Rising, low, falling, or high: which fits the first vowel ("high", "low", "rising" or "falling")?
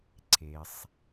low